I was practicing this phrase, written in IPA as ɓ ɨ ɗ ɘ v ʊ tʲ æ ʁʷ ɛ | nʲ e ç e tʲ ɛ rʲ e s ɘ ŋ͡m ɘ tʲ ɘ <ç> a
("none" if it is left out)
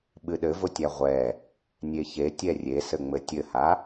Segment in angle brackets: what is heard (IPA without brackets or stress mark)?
h